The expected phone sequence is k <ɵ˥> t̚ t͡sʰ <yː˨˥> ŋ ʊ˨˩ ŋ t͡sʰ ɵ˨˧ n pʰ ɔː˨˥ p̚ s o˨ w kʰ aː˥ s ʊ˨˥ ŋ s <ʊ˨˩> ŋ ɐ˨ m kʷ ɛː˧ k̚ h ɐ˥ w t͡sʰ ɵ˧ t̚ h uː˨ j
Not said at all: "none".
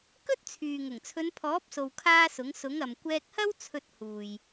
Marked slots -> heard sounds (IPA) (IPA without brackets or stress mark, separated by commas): ɵ˥, yː˨, ʊ˨˥